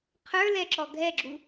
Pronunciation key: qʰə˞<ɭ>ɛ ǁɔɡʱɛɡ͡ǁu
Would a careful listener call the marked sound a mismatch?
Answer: yes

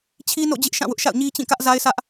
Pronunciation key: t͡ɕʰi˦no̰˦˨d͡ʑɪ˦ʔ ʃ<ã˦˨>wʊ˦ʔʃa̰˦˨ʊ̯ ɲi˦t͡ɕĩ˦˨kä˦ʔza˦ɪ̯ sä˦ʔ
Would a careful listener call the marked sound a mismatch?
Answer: no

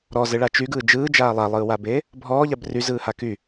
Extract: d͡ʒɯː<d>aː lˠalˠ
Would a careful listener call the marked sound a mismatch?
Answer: yes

